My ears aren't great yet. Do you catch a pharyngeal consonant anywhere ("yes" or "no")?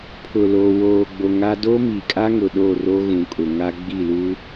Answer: no